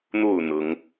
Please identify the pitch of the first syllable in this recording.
falling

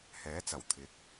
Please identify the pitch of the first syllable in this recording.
rising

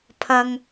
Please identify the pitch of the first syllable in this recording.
high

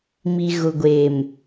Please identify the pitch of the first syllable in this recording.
low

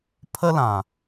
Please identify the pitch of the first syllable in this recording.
high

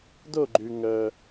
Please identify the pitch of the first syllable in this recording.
falling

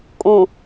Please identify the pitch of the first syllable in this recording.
low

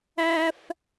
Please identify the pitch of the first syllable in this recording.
high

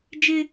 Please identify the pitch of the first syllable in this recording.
high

